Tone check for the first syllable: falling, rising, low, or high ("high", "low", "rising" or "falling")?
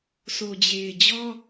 low